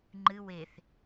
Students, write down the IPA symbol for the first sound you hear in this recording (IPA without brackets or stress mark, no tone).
ŋ͡ǃ